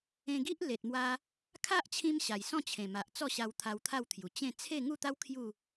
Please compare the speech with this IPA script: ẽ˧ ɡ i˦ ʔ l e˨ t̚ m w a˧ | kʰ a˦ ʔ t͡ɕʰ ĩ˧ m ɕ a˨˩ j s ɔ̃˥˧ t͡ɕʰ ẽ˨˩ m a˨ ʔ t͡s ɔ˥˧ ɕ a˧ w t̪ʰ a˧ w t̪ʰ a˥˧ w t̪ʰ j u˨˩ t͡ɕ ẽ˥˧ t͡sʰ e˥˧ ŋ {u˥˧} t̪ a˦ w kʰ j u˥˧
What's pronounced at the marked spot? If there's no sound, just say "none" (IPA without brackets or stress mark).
u˥˧